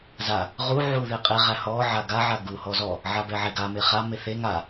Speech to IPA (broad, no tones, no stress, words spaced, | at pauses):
za | ʁu ʕuðeqʼe ʁæhɔ ʕaɡa ʕaɡu hɔzɔ | ʕabɛʕɛɡa meχa meθe ŋa